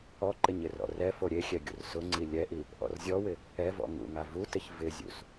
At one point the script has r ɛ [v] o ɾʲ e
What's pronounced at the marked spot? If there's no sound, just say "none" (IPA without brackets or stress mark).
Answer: f